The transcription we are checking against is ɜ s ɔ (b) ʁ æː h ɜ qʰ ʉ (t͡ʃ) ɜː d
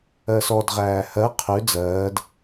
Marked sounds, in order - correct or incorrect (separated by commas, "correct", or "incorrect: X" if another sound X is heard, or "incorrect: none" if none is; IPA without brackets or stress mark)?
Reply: incorrect: d, incorrect: d͡z